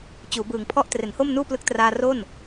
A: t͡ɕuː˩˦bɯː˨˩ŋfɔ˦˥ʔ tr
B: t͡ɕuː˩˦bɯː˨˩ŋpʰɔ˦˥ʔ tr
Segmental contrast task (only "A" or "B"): B